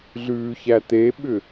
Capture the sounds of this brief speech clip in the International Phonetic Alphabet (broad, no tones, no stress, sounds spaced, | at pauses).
ɮ ʉː ç æ t̪ e ɓ ʏ